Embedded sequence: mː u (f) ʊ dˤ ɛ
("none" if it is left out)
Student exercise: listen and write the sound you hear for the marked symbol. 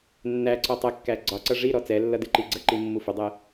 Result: f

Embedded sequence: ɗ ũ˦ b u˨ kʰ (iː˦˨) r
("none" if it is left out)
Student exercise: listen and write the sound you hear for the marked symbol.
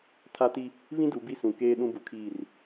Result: iː˦˨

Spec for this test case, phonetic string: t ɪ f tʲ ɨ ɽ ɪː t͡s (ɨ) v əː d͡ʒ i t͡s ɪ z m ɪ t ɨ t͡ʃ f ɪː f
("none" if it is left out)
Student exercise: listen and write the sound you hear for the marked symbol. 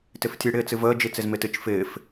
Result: ɨ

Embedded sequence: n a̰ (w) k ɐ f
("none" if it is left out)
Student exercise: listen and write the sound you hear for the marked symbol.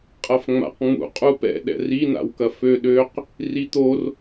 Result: w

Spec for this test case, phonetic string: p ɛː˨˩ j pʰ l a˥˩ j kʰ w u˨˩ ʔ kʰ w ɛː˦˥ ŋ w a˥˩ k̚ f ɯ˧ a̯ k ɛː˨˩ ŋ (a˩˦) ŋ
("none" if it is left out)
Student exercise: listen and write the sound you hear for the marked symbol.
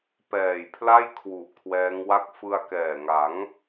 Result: a˩˦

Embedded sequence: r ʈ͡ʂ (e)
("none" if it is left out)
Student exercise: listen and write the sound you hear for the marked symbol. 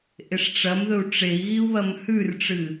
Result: ɨ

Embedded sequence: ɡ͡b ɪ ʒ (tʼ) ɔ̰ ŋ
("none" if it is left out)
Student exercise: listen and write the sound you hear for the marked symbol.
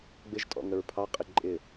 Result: tʼ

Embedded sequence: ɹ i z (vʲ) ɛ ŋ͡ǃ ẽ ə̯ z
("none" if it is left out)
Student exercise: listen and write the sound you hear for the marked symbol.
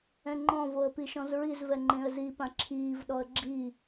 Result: v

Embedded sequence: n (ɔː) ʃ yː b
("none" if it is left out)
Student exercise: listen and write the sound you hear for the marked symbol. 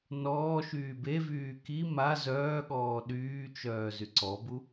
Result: ɔː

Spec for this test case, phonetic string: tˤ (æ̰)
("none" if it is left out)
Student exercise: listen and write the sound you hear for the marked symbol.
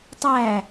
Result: æ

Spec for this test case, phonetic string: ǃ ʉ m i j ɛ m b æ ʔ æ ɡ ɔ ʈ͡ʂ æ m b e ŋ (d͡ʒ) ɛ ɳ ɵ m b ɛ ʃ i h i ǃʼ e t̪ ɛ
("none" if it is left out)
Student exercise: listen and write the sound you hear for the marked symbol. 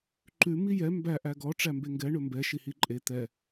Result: ɡ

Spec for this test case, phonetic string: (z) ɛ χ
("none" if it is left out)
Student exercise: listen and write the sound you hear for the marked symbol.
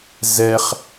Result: z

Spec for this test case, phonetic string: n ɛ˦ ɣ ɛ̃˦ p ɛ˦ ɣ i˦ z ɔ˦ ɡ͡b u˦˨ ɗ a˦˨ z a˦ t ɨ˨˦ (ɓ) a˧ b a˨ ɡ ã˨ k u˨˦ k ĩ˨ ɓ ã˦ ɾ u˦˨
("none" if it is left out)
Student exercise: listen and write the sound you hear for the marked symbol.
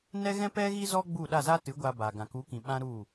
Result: ɡʷ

